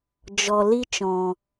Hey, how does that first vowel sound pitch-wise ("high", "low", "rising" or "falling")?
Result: low